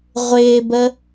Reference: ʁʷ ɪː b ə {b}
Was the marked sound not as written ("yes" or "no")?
yes